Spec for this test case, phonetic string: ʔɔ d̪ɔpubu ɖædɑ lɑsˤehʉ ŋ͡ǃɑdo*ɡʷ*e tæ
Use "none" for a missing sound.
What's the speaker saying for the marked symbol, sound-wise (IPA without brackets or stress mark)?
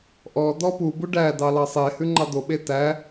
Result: ɓ